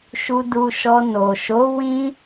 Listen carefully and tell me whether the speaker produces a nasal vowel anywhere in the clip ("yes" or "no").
yes